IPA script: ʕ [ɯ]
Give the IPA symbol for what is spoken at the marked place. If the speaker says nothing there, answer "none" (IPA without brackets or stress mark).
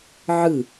ɯ